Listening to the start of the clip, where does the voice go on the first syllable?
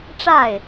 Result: falling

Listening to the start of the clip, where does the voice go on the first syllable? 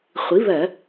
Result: rising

